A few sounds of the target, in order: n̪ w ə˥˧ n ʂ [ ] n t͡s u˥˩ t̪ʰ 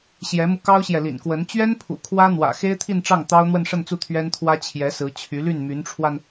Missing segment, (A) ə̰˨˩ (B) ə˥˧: B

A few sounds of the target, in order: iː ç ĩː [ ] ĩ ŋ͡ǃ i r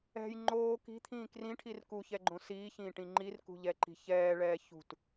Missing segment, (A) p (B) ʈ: B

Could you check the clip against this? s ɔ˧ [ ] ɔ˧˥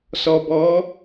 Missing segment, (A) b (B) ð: A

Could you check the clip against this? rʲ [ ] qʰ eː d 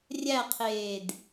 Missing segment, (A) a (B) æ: B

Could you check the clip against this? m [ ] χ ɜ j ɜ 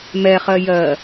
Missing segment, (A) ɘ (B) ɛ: B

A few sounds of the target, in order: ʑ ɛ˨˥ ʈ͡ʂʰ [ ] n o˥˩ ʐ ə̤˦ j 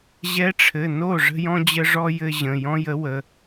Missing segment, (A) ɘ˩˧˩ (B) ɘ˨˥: A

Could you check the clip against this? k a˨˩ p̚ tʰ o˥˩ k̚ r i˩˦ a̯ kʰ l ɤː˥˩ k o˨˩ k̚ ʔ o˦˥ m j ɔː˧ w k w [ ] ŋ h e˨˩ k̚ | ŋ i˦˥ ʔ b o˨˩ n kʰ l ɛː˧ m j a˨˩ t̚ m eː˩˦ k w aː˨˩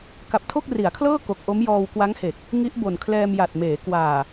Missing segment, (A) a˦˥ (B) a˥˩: A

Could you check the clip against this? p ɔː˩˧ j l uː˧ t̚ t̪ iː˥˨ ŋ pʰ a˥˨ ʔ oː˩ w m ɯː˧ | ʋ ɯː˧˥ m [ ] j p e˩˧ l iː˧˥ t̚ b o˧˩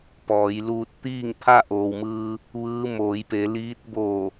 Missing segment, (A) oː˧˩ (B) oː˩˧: B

